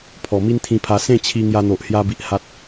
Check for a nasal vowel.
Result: present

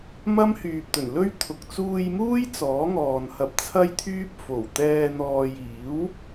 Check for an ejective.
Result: absent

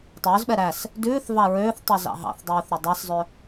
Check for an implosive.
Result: present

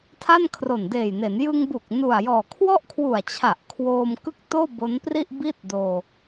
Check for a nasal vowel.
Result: absent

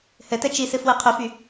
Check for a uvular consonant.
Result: present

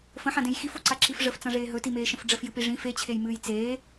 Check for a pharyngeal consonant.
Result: present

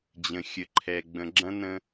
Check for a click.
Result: present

